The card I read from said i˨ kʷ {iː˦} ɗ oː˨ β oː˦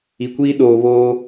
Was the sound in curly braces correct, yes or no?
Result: yes